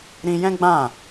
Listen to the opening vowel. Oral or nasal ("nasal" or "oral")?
nasal